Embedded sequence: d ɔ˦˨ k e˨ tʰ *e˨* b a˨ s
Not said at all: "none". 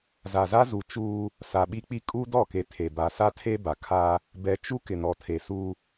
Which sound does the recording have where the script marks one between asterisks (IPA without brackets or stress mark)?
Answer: e˨